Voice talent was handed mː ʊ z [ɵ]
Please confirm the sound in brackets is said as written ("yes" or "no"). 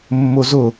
no